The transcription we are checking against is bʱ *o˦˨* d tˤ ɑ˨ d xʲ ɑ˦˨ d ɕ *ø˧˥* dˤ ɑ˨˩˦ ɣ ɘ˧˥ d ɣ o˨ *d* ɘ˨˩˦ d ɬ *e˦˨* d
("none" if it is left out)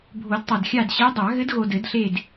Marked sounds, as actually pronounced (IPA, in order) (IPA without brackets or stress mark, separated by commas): o˨˩˦, e˧˥, d, e˦˨